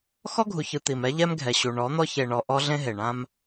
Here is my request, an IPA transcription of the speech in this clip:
x ɔ˦ ɡʱ u˨ ç ɯ˨ t̪ i˨ m ɛ˦ ʎ ɛ˦ m ɡʱ ɛ˨ ɕ u˨ ɳ ɔ˨˦ n̪ ɔ˦ ç e˨ ɳ ɔ˨ ʔ ɔ˦ ɮ ẽ˦ ɦ e˨ ɳ ã˦ m

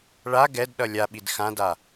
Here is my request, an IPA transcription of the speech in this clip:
ɭ a ɡ ɛ d ɗ ʌ lʲ a ɓ i d x ã d a

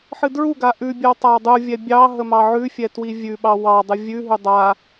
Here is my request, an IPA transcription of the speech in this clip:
ħ ɨ d ɹ u ɡ a ʔ ʉ bʲ ə w tˤ a w dˤ u vʲ ɛ bʲ ɑ ɦ ə m ɑ ʕ ʉ fʲ ɛ t w i vʲ ʉ ɓ ɑ w ɑ dˤ ɨ vʲ ʉ ɦ ʉ dˤ a

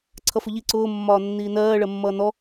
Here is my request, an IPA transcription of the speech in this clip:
ǀʰ ʌ f ʊ ʎ i ǀ ʊː mː ɒː nː iː n ɜː ɭ ɜ mː ʌː n ɔ

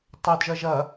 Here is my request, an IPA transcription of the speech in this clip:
tˤ œ d ʒ ɐ ʒ ɐ

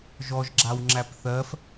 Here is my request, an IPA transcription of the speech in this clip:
ʒ ɔ ʒ ɡ͡ǁ a w ŋ͡ǁ æ p θ ɜ f

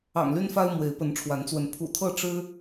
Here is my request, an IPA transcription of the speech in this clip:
ɑ̰˨˩ ŋ l y˦ n f a˦ ɪ̯ m w e˨˦ ɪ̯ p ə˨˦ n ʈ͡ʂʰ w a˨˦ n t͡s w ə˨˦ n pʰ ṵ˨˩ t̪ʰ ɤ˥˨ ʈ͡ʂ ɻ̩˦

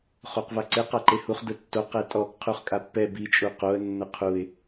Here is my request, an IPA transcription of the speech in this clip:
χ o q v a ǀ e q a ǃ e h u χ d ʊ tː o q ɛ tʼ ɔ ɡ qʰ u χ kʼ a pː ɛ b i t͡ʃʼ u q o ə̯ nː ʊ qʰ u ɪ̯

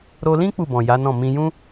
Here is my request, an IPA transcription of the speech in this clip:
ɾ o˧ l ĩ˦ k͡p u˦˨ b ɔ̃˨ j a˨˦ n ɔ̃˦˨ m ĩ˧ j ũ˦

